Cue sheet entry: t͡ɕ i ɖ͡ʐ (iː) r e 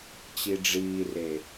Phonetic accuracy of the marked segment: correct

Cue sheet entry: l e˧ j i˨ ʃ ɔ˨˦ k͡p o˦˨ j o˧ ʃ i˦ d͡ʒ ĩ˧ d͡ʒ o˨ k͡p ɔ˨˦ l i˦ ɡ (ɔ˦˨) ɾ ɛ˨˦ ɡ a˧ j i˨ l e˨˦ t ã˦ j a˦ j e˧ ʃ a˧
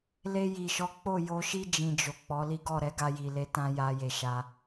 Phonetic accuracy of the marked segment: correct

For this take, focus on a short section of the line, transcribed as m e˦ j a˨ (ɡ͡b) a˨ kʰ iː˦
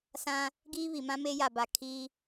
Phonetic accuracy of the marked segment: incorrect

